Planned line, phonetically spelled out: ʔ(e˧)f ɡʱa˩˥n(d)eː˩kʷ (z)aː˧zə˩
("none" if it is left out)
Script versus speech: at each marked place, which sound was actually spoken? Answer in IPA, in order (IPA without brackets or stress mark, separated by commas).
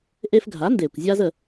e˧, d, zʲ